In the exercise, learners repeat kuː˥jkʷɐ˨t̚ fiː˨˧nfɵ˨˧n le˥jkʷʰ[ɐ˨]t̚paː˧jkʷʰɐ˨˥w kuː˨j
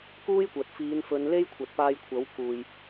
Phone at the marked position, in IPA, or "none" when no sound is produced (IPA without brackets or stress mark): ɐ˨